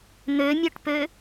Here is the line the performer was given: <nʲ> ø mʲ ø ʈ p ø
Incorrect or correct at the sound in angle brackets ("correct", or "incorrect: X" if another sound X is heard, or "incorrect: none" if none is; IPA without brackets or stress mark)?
incorrect: n̪